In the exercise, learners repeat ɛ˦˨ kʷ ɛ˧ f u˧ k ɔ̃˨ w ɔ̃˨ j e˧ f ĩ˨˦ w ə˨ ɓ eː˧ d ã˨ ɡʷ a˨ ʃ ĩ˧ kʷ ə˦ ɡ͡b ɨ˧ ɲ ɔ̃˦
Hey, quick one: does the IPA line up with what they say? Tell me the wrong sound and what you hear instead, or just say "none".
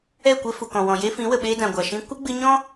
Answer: u˧ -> u˨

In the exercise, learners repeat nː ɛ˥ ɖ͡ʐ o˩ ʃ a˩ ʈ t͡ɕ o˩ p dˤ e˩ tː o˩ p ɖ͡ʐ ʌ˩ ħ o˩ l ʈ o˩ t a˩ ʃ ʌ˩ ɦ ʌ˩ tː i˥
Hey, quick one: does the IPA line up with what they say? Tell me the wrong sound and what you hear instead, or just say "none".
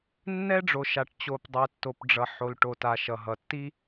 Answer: none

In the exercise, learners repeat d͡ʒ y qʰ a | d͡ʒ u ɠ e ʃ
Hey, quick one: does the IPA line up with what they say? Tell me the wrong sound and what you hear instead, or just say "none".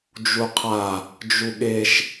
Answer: y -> u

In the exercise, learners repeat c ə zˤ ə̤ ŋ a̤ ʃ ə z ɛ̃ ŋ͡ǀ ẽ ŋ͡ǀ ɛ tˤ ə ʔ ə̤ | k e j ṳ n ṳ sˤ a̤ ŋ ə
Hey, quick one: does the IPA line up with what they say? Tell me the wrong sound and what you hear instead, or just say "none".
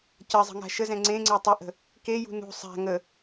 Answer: none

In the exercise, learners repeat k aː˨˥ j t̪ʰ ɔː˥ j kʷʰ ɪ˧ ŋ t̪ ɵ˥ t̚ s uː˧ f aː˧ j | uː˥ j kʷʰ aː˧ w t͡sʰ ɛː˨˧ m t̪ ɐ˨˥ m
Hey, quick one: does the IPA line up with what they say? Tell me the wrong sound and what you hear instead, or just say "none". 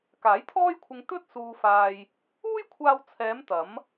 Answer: none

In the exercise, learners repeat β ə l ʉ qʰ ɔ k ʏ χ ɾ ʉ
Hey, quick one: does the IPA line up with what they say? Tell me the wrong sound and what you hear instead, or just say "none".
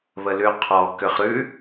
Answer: none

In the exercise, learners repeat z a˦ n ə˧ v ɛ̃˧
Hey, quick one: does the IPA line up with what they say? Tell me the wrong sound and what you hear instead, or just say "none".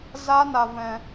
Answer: ə˧ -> a˧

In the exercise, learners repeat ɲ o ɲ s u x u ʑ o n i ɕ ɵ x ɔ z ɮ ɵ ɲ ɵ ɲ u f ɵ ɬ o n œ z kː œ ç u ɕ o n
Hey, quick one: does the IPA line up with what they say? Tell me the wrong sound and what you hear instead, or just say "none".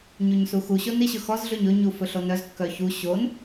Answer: ʑ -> ɕ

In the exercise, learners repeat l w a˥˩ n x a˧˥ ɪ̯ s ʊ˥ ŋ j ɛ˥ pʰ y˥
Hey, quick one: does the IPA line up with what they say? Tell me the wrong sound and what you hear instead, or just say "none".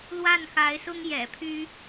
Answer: ɛ˥ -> ɛ̰˨˩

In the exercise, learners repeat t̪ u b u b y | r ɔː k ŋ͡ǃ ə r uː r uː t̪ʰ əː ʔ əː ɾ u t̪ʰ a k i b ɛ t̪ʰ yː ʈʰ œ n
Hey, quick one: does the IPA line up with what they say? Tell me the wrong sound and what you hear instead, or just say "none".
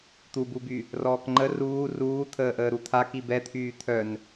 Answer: ʈʰ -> t̪ʰ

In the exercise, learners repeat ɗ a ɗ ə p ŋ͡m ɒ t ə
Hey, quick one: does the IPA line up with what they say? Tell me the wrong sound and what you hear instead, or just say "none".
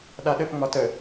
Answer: none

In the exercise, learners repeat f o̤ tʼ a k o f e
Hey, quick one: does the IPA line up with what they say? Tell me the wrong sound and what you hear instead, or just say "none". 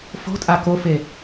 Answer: none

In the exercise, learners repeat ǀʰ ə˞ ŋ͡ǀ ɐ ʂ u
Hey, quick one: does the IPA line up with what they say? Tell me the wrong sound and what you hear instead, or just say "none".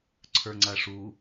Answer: none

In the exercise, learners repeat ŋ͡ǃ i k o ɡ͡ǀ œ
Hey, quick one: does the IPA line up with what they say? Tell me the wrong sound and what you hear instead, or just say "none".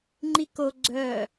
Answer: none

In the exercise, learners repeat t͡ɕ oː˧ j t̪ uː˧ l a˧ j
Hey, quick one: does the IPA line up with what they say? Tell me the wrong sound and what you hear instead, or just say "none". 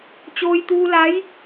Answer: a˧ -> a˧˥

